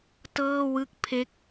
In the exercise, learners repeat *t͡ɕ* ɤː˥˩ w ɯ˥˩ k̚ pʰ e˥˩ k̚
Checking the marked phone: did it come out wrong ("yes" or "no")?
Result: yes